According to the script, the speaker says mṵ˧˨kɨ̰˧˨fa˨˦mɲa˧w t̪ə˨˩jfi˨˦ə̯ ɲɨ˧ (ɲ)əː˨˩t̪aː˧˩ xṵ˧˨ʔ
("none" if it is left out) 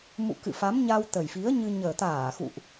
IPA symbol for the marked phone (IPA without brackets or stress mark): ɲ